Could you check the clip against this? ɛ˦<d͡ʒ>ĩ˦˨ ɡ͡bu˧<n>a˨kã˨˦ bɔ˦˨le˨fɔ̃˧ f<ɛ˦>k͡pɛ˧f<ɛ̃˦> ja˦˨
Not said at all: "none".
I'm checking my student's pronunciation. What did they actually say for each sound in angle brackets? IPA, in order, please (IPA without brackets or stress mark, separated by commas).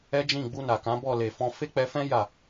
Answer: d͡ʒ, n, e˦, ɛ̃˦